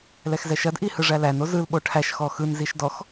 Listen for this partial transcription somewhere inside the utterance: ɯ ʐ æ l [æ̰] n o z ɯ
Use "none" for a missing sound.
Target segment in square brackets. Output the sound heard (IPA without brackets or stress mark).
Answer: æ